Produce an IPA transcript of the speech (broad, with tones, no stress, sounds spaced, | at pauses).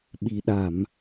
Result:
ɓ i˨˩ ɗ a˧˩˨ m